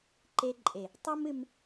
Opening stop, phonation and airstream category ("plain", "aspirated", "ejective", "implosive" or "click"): click